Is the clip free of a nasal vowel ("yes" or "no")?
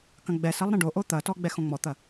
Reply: no